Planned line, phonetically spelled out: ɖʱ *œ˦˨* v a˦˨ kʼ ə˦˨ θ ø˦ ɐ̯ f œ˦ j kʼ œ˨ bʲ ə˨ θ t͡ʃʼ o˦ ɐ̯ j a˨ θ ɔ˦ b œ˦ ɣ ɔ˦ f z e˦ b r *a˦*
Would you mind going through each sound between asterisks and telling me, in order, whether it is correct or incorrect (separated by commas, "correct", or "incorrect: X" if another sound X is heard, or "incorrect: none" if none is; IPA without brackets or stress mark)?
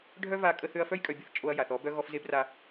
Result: incorrect: œ˦, correct